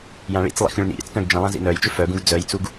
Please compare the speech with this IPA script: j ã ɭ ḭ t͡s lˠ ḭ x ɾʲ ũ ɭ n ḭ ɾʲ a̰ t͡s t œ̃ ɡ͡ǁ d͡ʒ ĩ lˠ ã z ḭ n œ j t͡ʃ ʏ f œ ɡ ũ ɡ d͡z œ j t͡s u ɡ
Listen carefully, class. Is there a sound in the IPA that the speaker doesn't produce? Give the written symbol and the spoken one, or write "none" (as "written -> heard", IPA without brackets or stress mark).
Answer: ɡ͡ǁ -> ɡ